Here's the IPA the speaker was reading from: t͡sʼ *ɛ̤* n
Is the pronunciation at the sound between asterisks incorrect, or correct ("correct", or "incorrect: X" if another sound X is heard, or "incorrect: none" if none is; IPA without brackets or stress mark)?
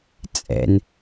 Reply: incorrect: ɛ̰